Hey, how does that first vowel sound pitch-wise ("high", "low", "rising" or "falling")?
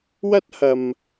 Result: high